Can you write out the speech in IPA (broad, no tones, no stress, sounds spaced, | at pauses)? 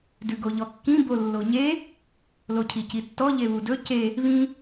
d ʉ ɡ o ʎ ɔ kː ĩ b o lː o ɲ e | l o cʰ i c i tː ɔ ʎ e β u d ɵ c e | β ĩ